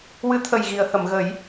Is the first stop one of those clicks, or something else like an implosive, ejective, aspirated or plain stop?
aspirated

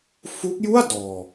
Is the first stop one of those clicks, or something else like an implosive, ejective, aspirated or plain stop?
plain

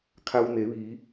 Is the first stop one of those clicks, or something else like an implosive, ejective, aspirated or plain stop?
aspirated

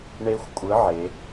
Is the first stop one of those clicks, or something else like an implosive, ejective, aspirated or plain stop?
ejective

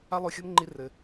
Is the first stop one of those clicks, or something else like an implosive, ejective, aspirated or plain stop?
click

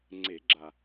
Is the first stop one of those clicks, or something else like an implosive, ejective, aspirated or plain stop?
click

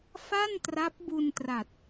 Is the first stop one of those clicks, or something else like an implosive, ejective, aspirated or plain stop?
plain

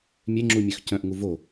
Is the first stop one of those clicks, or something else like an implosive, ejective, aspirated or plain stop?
click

